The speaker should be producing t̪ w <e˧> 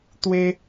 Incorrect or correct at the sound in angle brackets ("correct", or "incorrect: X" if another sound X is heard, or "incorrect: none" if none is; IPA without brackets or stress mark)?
correct